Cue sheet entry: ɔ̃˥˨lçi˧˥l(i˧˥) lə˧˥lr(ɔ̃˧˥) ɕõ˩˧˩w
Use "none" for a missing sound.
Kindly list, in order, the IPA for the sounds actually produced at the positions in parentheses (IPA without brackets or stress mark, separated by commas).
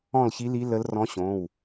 i˧˥, ɔ̃˧˥